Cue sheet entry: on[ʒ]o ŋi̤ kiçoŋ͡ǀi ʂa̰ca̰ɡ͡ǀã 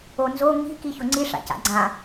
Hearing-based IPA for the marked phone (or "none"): z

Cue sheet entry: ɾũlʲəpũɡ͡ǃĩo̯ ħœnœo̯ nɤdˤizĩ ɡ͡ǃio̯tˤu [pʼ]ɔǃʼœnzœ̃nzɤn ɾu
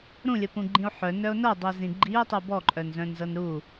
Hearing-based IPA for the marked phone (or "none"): b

